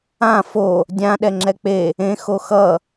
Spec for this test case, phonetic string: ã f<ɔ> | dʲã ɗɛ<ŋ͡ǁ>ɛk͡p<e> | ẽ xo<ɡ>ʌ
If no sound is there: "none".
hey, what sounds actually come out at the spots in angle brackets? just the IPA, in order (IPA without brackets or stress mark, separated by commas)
o, ŋ͡ǁ, e, x